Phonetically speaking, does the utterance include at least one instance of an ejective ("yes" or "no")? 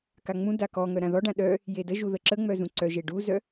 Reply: no